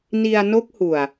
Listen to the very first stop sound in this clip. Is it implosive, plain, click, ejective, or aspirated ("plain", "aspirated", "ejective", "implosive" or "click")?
plain